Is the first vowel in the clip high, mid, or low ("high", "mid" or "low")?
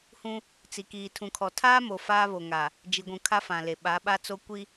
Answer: high